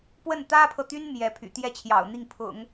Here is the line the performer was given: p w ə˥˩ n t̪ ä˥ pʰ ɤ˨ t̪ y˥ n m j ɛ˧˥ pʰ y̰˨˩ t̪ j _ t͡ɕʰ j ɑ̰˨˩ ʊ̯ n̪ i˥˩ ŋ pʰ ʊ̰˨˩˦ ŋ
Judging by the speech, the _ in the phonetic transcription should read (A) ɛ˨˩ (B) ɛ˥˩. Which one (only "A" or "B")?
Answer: B